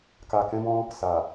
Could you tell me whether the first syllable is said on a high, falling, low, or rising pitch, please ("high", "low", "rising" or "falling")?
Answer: low